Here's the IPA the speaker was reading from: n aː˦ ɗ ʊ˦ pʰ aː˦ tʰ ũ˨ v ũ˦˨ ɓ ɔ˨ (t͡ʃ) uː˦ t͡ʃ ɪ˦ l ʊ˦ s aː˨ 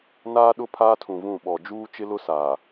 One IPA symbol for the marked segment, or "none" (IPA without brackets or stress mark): d͡ʒ